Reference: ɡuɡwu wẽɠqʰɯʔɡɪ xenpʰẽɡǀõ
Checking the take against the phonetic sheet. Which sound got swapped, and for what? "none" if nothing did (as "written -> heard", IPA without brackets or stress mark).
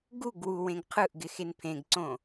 ɠ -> ɡ